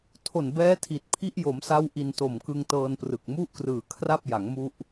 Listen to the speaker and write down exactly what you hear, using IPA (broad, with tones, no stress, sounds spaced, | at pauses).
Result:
tʰ o˨˩ n b ɛː˦˥ tʰ i˨˩ t̚ pʰ i˦˥ ʔ j o˩˦ m s a˦˥ w ʔ i˧ n t o˨˩ m k ɯ˧ ŋ t ɤː˧ n p r ɯ˨˩ k̚ m u˥˩ ʔ k r ɯː˨˩ kʰ r a˥˩ p̚ j a˩˦ ŋ m u˦˥ ʔ